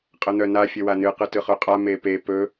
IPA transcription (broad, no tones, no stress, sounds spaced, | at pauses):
qʼ ə n̪ œ n a fʲ ə w a n ɨ q ɯ t ɯ χ œ qʼ a m e p e p ɵ